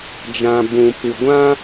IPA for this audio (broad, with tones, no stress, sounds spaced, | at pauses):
d͡ʒ ã˨ b ũ˨ p ɨ˨ ɡʷ ã˦